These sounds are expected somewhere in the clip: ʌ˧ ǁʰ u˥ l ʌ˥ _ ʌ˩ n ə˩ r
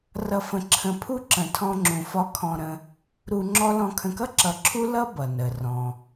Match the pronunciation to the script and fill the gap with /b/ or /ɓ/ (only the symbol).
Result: b